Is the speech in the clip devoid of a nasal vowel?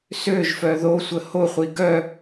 yes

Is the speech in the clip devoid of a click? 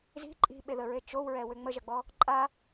no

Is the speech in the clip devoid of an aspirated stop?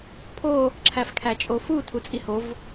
no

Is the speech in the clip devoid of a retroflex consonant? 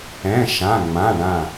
no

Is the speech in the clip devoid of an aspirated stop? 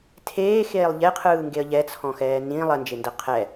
no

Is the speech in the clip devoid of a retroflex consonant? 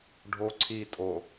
no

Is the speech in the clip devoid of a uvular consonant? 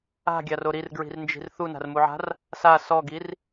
yes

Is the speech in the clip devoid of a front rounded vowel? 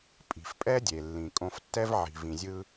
yes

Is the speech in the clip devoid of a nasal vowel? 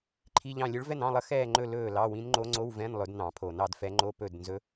no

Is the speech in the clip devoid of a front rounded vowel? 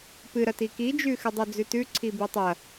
yes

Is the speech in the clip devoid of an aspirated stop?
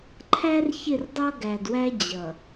no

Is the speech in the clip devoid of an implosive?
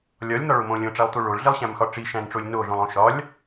yes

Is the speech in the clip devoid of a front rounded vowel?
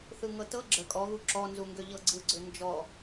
no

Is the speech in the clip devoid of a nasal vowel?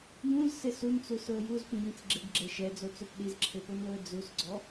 no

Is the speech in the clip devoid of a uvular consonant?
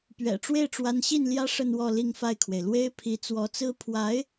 yes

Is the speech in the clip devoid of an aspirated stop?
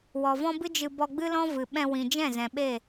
yes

